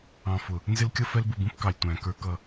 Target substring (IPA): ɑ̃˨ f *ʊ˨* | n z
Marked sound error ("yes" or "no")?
no